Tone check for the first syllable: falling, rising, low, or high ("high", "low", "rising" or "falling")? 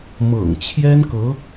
low